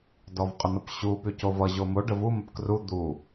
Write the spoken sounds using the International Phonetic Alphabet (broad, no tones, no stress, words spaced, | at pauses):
dɔvqʼən̪ʌpɕu pycovʌ ʑomo ɖəvu məpkru d̪u